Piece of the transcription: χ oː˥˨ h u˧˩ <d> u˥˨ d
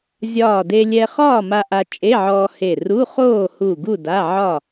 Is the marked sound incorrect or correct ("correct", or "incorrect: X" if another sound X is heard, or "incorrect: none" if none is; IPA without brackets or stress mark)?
incorrect: ɡ